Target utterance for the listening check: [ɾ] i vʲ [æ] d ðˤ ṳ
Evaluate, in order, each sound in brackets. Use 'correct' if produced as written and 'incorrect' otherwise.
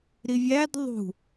correct, correct

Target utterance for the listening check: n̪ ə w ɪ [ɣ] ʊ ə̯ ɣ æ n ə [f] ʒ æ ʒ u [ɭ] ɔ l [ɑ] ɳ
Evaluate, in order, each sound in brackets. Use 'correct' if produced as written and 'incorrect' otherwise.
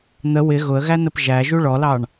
correct, incorrect: p, correct, correct

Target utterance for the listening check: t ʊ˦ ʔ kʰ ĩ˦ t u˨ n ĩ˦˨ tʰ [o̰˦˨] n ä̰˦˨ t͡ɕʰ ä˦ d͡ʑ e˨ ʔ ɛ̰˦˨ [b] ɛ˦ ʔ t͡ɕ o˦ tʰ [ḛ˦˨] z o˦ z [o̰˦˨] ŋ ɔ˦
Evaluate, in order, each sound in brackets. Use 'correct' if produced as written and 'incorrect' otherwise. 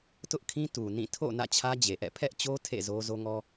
correct, incorrect: pʰ, correct, incorrect: o˦

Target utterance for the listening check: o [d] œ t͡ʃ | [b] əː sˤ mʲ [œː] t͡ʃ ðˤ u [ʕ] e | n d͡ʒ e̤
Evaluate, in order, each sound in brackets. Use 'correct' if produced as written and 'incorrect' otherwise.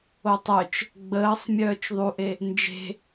incorrect: tˤ, incorrect: ɡ͡b, correct, incorrect: ʔ

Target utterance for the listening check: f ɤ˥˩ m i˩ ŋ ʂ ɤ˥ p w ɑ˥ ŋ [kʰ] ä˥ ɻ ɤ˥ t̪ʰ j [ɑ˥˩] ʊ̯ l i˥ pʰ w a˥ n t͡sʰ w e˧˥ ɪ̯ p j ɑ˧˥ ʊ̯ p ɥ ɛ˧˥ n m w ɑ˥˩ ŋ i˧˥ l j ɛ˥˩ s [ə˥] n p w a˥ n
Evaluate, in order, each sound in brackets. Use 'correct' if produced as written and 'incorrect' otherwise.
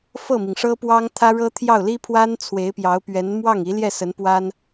incorrect: t̪ʰ, correct, incorrect: ə˧˥

